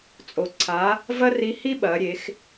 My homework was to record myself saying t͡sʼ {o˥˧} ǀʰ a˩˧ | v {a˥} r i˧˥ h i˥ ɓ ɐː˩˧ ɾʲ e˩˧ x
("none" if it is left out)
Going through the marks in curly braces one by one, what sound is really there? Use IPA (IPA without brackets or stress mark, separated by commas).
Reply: o˩, ɐ˥